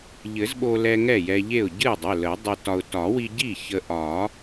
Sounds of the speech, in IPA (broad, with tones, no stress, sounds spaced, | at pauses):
ʎ ɘ˨˩˦ z ɓ o˧ l ɛ˧ ŋ ɛ˥˩ j ɛ˧ ʎ e˥˩ ʊ̯ ɟ ɨ˥˩ ɪ̯ dˤ ɵ˩˧˩ l ə˨˩˦ dˤ ɨ˧ t ɒ˧ ʊ̯ t ɒ˨˩˦ w i˧ ɟ i˥˩ ç ə˧ ʔ ɒ˨˩˦